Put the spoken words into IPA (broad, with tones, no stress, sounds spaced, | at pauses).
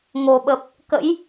ŋ o˨˩ ɓ ə˨˩ p̚ | k ə̰˧˥ j